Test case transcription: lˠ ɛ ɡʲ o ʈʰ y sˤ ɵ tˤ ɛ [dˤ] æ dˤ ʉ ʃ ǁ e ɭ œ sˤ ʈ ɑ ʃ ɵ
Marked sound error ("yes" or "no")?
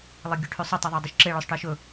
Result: yes